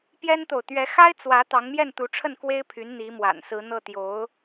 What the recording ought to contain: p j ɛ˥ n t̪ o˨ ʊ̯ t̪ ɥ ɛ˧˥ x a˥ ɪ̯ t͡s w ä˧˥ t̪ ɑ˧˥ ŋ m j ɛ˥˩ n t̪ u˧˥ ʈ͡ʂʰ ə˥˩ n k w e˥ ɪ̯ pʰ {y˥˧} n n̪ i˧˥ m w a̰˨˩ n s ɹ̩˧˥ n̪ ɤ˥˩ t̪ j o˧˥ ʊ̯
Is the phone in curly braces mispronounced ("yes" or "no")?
yes